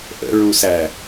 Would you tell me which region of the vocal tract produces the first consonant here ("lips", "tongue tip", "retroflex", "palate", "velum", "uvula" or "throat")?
throat